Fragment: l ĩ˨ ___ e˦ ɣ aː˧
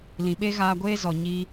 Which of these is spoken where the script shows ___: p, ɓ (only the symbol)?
ɓ